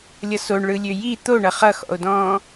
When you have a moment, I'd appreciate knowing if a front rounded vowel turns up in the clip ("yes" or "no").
yes